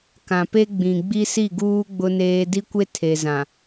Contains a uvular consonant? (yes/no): no